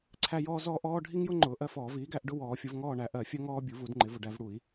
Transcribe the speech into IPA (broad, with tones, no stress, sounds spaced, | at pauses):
ǀʰ æ˦ j ɔː˦ z ɔː˦ ʔ ɔː˦ ɖʱ i˦ ŋ j ʊ˦ ŋ͡ǃ ʊː˩˥ ʔ ɜ˦ f ɔː˨˩˦ v iː˩˥ ɡ æ˨˩˦ ʔ ɖ ʊ˥˨ w ɔː˨˩˦ fʲ ʊ˩˥ v ŋ ɔː˥˨ ɳ æ˩˥ ʔ ɜ˨˩˦ fʲ ɜ˦ ŋ ɔː˦ bʲ u˩˥ v u˨˩˦ d ŋ͡ǃ ɪ˩˥ v ʊ˨ ɖ æ˦ v ɽ u˨˩˦ i̯